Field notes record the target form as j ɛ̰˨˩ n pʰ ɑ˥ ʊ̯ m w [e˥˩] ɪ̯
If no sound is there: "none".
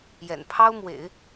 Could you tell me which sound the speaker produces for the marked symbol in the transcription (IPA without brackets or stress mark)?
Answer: ḛ˨˩˦